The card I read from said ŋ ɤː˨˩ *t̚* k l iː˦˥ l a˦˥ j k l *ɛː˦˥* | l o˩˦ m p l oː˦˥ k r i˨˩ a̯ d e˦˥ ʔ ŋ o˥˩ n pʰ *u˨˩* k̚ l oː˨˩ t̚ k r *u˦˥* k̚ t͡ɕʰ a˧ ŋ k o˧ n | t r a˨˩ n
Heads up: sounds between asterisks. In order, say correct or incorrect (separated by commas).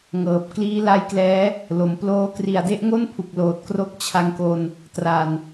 incorrect, correct, correct, incorrect